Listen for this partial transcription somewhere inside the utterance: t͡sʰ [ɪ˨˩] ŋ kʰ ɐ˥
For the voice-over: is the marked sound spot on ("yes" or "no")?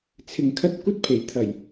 no